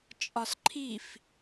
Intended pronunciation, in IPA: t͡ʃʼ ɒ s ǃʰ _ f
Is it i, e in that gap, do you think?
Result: i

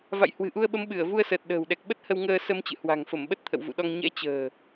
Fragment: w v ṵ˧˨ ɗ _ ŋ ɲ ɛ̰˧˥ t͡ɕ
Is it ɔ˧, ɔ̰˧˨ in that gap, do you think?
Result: ɔ˧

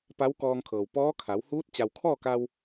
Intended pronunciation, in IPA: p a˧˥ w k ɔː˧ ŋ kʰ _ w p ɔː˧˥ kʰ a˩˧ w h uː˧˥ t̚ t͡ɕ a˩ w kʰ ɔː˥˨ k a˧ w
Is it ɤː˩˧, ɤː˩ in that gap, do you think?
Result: ɤː˩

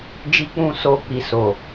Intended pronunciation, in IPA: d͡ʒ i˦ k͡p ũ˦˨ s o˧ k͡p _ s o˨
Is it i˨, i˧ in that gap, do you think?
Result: i˨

